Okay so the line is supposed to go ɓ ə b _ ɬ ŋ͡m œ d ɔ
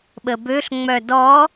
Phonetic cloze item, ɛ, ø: ø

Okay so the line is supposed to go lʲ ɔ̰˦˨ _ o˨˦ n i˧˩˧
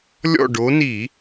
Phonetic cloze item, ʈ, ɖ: ɖ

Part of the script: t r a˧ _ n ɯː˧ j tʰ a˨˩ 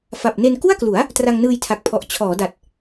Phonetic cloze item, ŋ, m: ŋ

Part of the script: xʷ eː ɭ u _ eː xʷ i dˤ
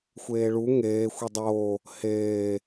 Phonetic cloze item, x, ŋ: ŋ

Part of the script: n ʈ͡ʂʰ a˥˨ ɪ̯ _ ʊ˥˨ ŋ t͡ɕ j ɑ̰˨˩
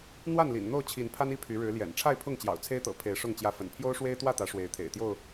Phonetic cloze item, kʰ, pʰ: pʰ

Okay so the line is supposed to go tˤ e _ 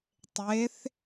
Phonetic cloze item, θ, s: θ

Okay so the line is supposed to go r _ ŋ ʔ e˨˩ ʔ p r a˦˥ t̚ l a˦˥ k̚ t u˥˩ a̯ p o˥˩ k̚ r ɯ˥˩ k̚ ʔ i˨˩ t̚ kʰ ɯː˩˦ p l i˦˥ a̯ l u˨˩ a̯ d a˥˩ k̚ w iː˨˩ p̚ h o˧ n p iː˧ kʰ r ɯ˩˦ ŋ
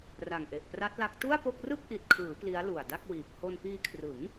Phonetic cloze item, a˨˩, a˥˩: a˨˩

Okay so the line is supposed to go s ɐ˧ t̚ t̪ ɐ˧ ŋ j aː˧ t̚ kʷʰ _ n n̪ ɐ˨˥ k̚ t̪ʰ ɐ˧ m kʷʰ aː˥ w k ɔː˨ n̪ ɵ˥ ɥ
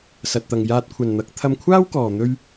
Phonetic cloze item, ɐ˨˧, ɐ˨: ɐ˨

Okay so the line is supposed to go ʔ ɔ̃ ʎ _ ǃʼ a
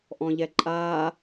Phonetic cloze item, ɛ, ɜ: ɛ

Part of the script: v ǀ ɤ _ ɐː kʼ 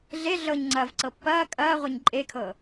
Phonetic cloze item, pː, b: pː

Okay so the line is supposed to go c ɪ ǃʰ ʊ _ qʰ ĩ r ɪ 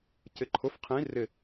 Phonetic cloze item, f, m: f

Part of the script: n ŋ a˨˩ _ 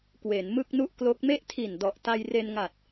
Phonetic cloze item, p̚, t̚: t̚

